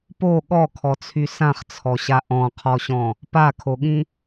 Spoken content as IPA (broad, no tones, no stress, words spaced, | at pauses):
po ɠɔkʰɔt͡sʰy sãχt͡sʰɔɕa ʔɔ̃qʰɔɕɔ̃ | pakʰoɠĩ